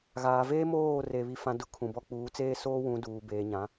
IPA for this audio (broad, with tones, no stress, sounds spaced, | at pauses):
ɣ aː˨ v eː˦ m oː˦˨ r e˨ β i˨ f ã˦ d ʊ˦ kʰ ũ˨ b ɔ˦ k͡p uː˨˦ t͡s eː˦ s oː˦ w ũ˨˦ d uː˨ b eː˨ ɲ ã˨˦